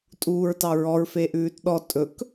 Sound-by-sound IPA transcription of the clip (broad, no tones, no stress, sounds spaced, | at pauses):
tʼ uː ɹ t ɑ ɹ ɔ ɹ f e ʔ ʉː t ɗ ɔ tʼ ɵ k